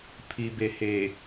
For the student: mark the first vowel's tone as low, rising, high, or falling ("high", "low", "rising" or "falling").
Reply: low